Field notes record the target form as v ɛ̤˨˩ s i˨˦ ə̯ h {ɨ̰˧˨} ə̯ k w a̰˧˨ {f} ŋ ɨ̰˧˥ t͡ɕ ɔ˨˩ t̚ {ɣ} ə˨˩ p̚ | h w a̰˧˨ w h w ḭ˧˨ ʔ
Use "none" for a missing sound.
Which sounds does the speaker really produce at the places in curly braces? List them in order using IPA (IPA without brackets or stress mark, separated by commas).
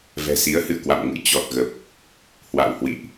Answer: ɨ̰˧˨, m, ɣ